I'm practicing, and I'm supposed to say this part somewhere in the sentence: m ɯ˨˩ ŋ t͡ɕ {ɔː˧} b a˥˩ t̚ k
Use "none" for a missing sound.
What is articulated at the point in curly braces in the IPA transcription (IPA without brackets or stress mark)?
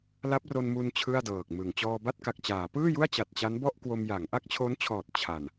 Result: ɔː˧